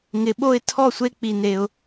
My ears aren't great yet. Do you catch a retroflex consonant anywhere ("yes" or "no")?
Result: no